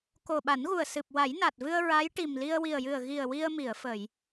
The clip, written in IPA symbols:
k o˨˩ ɓ a˨˩˦ n ɣ u˨˩ ə̯ s ɨ˨˩ p̚ w a˨˩˦ j n a˨˩ t̚ v ɨ˧ ə̯ ɹ a˧˥ j ʈ i˨˩ m l i˧ ə̯ w i˨˩ ə̯ j ɨ˨˩ ə̯ ɣ i˨˩ ə̯ w i˧ ə̯ m i˨˩˨ ə̯ f ə˨˩˨ j

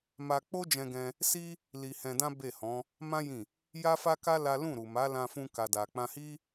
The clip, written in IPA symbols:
m a˧ k͡p o˦ d͡ʒ ɛ̃˧ ɡ ɛ̃˧ | s i˦ | l i˧ h ɛ̃˧ d ã˦ b e˦˨ h ɔ̃˨˦ | m ã˦ j ĩ˦˨ | j a˦ f a˦ k a˦ l a˦ l ũ˦˨ ɾ u˨ m a˨˦ l ã˧ f ũ˧ k a˨ d a˨ k͡p ã˧ h i˦

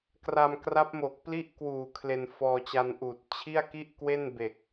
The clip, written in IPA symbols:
k r a˧ m k r a˦˥ p̚ m o˨˩ k̚ p l i˥˩ ʔ k w uː˨˩ kʰ l e˧ n f ɔː˧ t͡ɕ a˧ n ʔ uː˨˩ t̚ t͡ɕʰ i˥˩ a̯ k i˥˩ ʔ k w e˥˩ n b e˨˩ k̚

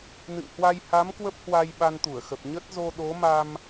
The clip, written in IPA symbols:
n ɨ̰˧˨ ŋ h w a˧ j h a˨˦ m k w ə˦˥ p̚ h w a˧ j ɓ a˧ n t̪ u˧˩ ə̯ x ə˨˩ p̚ ɲ ə˦˥ t̚ z o˧ ɗ o˨˦ m a˧ m

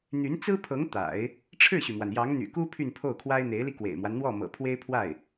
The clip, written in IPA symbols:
n̪ y˧˥ n t͡s ɹ̩˥ pʰ ɤ˧˥ ŋ t̪ a̰˨˩˦ ɪ̯ | ʈ͡ʂʰ ɻ̩˥˩ ɕ y˩ m w a˩ n j ɑ˧˥ ŋ n̪ y̰˨˩ k u˥ pʰ y˥˧ n pʰ o˥˩ ʊ̯ kʰ w a˥ ɪ̯ n̪ e˧˥ ɪ̯ l i˧ k w ḛ˨˩ ɪ̯ m w a˦ n n̪ w ɔ˥˩ m ɤ̰˨˩ pʰ w e˥ ɪ̯ pʰ w a˥˩ ɪ̯

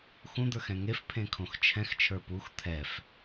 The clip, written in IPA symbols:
x ũ d̪ ə˞ x ɛ̃ ŋ e f pʰ ẽ kʰ õ x t͡ʃʰ ɛ̃ x t͡ʃʰ ə˞ p u x t̪ʰ ɛ f

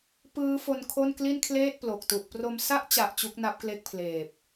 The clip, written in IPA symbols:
p ɯː˦˥ f o˧ n kʰ o˥˩ n k l i˥˩ n kʰ l eː˥˩ t̚ p l o˨˩ k̚ t u˨˩ ʔ p r o˧ m s a˦˥ ʔ t͡ɕ a˨˩ ʔ t͡ɕ u˦˥ k̚ n a˦˥ p̚ k l e˦˥ k̚ pʰ l eː˨˩ p̚

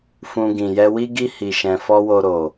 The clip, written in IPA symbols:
f ũ˧ ɡ ĩ˨ j ɛ˧ w i˦ ɡ i˦ h i˧ ʃ ɛ̃˧ f ɔ˦ w o˧ ɾ o˨

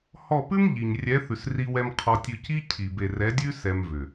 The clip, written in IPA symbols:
h ɔ˦˨ p ʉ˦ m ʎ i˨ ɲ rʲ ɛ˨˦ θ ʉ˨ s r i˧ w ɛ˧ m qʰ ɔ˧ tʲ ʉ˧ c i˦ cʰ i˨ b e˨ r ɛ˨˦ dʲ ʉ˦ s ɛ˧ m v ʏ˨

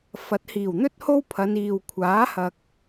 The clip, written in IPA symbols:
f ɐ˨˥ t̚ h iː˨˩ w n̪ ɵ˥ t̚ h o˥ w pʰ ɐ˨˧ n iː˨ w kʷʰ aː˨˥ h ɐ˨ k̚

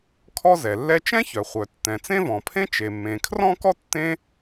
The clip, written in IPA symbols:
kʰ ɔ˥ z ɛ˩ lː ɛ˥ t͡ʃ ɛ̃˥ ç œ˩ χʷ œ˩ tː ɛ̃˩ t͡s ẽ˥ v ɔ̃˩ pʰ ẽ˥ t͡ʃ e˩ mː ẽ˩ kʰ r ɔ̃˥ k ɔ˥ tː ẽ˥

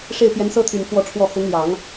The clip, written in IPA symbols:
ʂ e˥˩ ɪ̯ p j ɛ˧˥ n s ɤ˥ t̪ʰ y˨˩ n f w ɔ˥˧ ʈ͡ʂʰ w ɔ˥˩ x ʊ˧˥ ŋ l j ɑ˨˩˦ ŋ

